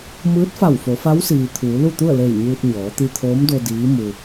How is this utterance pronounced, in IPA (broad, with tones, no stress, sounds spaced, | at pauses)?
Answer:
m ɯː˧˥ t̚ f a˧˩ w f o˩˧ f a˧˥ w s iː˩ t̪ʰ uː˩˧ l u˥˨ t̪ u˥˨ ə̯ l e˧˩ j ɲ uː˧ t̚ ɲ ɔː˩˧ t̪ i˧ t̪ʰ oː˧˥ m d o˧ d iː˧˥ m u˧